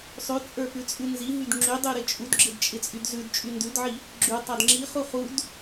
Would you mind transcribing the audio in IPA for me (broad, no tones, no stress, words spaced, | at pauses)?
sˤʉt͡sʼə˞pʉt͡sʼʉ nziɦyd ŋ͡ǁydˤyɾɪ t͡ʃʼudɡ͡ǁɪdt͡ʃʼɪt͡sʼyd zʉdt͡ʃʼy ndʉdʕi | ɡ͡ǁʉtˤad ŋ͡ǁiχu χud